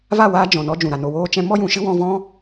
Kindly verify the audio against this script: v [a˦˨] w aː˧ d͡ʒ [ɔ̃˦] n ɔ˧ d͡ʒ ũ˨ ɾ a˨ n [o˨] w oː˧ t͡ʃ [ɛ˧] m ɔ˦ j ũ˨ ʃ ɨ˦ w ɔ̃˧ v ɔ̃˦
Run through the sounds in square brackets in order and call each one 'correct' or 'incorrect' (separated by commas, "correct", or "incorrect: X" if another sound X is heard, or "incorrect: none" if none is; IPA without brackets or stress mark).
correct, incorrect: ɔ̃˨, correct, incorrect: ɛ̃˧